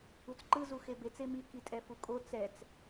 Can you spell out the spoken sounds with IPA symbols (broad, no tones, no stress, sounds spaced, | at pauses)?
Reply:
u t͡s ǃ ɯ z u x e b e t͡s e m i k i tʼ ɛ f u kʼ o t͡s ɛ t͡s